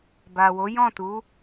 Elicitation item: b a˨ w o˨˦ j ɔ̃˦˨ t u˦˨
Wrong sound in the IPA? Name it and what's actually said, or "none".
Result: u˦˨ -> u˨˦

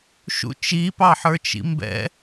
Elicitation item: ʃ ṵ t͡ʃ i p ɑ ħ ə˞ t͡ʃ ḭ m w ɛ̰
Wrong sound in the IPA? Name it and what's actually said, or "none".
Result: w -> b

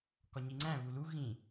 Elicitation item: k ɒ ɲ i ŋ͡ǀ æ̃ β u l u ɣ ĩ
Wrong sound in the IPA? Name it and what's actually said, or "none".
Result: none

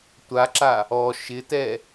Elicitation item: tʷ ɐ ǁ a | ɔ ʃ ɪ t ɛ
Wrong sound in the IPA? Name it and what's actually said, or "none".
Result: ɐ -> a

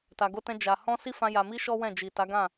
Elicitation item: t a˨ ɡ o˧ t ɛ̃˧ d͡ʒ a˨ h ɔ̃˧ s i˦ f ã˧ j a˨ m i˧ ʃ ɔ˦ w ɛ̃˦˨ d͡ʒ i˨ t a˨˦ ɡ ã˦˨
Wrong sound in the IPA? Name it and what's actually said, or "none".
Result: none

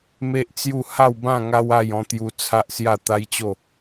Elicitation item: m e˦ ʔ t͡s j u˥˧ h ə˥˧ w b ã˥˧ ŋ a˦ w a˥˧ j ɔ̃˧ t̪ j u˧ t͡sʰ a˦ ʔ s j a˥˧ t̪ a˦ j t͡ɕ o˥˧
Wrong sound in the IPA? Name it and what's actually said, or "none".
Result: ə˥˧ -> a˥˧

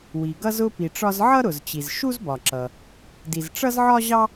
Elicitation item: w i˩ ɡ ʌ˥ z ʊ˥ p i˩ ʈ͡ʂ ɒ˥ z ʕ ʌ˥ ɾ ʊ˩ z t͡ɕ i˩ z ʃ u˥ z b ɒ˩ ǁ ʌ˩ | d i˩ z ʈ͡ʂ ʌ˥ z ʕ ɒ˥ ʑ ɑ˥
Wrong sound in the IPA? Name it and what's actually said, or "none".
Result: none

